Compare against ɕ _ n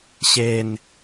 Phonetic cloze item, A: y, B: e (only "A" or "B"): B